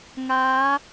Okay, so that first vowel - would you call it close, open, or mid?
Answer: open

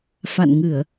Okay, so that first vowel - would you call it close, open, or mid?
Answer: open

